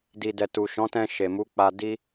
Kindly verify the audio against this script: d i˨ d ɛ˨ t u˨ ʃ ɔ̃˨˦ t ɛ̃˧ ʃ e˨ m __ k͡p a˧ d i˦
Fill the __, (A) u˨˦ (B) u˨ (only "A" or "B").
A